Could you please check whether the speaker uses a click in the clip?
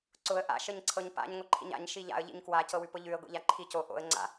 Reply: yes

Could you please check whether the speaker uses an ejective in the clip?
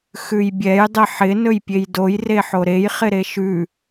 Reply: no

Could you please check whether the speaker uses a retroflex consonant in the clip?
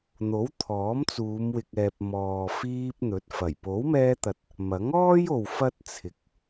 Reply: no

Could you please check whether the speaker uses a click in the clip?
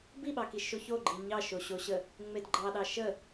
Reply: yes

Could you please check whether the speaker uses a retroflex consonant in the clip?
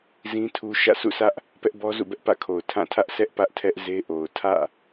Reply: no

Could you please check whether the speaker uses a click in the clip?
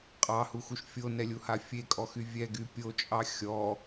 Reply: no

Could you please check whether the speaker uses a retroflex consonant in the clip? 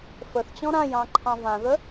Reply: no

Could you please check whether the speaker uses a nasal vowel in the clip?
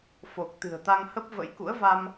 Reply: no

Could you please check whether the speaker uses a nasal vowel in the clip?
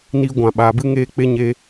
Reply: yes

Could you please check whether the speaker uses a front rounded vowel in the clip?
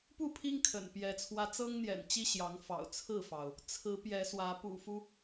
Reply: no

